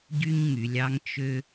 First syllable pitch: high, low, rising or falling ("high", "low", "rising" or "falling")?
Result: high